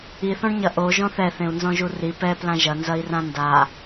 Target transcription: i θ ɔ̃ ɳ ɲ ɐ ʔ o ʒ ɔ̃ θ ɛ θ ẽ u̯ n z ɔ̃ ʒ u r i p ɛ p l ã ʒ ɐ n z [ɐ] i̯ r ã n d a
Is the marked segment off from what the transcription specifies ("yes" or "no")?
no